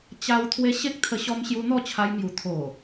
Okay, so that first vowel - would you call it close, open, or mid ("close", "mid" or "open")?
open